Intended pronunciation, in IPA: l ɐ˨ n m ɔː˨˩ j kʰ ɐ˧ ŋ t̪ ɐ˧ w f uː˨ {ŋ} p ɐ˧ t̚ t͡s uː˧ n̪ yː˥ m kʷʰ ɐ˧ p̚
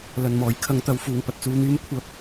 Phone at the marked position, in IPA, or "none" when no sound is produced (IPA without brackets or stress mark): ŋ